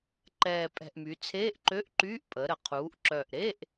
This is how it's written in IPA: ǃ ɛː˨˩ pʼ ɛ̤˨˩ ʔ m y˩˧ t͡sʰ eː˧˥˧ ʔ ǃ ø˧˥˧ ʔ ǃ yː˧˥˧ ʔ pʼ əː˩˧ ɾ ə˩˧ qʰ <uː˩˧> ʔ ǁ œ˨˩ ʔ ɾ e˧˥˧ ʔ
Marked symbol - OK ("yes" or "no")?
yes